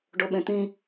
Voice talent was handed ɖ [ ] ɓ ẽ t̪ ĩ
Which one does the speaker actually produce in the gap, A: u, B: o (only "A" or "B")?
B